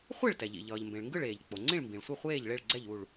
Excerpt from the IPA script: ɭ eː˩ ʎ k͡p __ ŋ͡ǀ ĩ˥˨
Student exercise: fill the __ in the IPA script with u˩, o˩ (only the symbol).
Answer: o˩